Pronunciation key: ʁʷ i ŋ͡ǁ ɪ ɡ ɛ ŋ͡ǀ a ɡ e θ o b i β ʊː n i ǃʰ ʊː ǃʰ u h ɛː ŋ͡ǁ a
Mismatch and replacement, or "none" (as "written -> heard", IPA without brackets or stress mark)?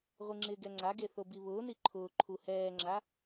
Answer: none